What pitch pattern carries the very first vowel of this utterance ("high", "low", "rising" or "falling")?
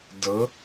rising